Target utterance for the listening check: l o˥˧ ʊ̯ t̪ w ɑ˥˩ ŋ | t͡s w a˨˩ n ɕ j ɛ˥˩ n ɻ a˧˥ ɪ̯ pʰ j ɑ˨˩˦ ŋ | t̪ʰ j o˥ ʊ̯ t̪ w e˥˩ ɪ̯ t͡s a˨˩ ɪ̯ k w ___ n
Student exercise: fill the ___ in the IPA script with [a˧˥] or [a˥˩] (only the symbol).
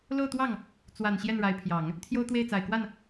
a˥˩